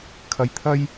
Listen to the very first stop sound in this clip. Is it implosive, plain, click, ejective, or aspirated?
aspirated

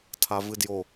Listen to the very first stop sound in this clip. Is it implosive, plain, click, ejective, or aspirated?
aspirated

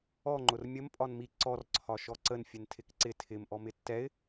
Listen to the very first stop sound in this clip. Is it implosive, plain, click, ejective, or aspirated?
click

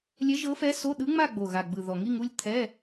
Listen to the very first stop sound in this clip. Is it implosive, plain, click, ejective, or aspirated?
implosive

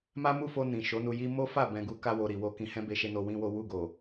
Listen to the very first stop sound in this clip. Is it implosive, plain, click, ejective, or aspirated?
plain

